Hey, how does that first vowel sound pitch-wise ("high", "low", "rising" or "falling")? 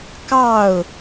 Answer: falling